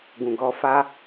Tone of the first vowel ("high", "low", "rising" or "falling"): low